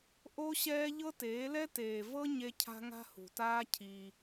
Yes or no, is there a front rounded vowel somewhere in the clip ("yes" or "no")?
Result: no